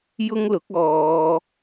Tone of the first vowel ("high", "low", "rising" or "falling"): high